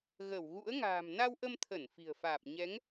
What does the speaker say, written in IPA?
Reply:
ɣə˧˩wɣṵ˧˥ə̯ŋa̤ː˨˩m na˧wʔə˧mt̪ʰə˧˩n fi̤˨˩ə̯faː˨˩p̚ ɲɛ˨˦ŋ

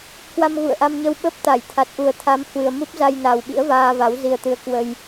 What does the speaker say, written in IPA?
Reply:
kwa˧mɣṵ˧˨ə̯ʔa˧mɲə˧w ɓə˦˥p̚ t̪a˧˩jt̪ʰa˨˩t̚ʔu˨˩ə̯ t̪ʰa˨˦m hwɨ˨˩ə̯mu˦˥p̚za˧jna˨˩w ɓḭ˧˥ə̯vaː˧va˨˦w zi˧ə̯t̪ɨ˧ə̯kwə˧j

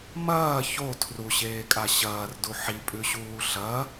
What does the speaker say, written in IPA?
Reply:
mɐː ço tʰruɕeːkʼa ɕɐːrdu ħipʼʉɕuː ɬɐ

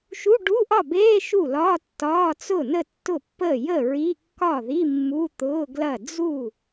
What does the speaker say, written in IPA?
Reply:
ʃu˧˥˧ɖu˧˥˧ʔɒ˥˩beː˧˥˧ ʃu˥˩lɒː˧˥˧tːɒː˧˥˧ t͡sʊ˥˩nə˥˩tːʊ˥˩pːəː˥˩ jə˥˩ɹi˧˥˧kːɒ˥˩ði˧˥˧ mːu˧˥˧t̪ʊː˧˥˧ɡlɐ˥˩ d͡zu˥˩

